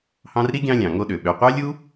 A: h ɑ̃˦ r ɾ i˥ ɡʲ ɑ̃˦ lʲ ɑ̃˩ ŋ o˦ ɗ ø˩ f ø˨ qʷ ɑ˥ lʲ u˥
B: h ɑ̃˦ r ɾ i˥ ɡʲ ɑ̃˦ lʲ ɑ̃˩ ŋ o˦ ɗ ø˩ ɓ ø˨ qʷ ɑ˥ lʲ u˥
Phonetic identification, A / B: B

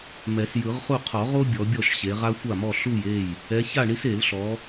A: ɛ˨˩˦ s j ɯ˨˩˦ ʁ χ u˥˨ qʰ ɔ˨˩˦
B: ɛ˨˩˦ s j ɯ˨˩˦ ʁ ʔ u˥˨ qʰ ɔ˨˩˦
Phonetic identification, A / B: A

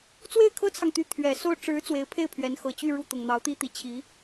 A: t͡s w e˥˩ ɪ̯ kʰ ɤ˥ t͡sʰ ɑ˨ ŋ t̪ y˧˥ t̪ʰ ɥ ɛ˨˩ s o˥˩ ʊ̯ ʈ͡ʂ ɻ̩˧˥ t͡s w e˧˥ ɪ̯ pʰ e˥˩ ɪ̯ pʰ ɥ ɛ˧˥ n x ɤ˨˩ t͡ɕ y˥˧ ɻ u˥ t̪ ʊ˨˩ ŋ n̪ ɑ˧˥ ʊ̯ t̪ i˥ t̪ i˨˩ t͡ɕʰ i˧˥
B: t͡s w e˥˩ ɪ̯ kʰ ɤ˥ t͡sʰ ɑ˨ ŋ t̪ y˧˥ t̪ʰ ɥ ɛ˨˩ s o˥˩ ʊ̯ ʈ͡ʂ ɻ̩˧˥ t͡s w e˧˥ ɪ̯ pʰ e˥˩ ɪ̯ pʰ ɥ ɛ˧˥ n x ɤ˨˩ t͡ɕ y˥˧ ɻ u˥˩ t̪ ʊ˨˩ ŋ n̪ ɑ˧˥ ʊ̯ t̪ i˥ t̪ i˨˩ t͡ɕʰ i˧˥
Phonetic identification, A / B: B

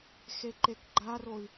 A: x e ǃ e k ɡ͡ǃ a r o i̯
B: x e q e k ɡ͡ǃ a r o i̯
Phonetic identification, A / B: A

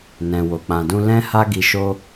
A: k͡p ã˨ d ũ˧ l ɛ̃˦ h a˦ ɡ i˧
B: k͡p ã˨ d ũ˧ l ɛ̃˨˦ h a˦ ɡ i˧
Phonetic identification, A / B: A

